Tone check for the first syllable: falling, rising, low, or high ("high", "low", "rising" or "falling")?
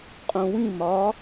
low